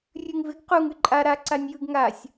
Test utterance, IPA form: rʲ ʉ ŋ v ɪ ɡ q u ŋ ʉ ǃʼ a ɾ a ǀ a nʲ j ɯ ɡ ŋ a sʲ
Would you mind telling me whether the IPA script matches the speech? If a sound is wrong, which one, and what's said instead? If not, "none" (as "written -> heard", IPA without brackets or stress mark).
none